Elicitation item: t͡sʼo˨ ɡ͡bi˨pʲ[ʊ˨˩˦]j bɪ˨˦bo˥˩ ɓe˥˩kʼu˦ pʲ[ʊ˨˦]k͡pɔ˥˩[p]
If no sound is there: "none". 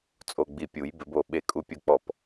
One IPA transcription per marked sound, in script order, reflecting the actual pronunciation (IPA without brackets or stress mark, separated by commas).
u˨˩˦, ʊ˥˩, p